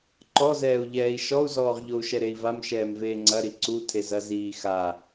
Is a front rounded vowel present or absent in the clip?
absent